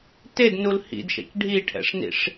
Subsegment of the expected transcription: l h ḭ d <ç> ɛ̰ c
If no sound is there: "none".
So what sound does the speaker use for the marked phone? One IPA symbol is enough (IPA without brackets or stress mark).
ʃ